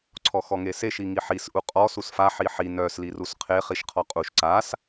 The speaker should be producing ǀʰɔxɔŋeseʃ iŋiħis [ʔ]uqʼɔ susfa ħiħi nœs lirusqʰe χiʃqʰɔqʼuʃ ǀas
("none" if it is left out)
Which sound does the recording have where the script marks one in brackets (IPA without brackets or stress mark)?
ʔ